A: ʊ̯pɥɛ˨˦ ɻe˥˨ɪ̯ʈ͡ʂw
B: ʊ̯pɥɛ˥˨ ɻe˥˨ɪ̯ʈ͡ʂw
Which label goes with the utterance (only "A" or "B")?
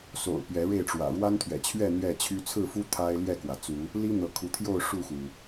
A